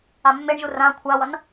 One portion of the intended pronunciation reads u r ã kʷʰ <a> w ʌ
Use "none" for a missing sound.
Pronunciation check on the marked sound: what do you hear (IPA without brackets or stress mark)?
a